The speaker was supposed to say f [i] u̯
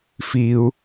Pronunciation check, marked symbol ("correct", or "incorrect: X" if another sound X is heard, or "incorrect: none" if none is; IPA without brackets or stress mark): correct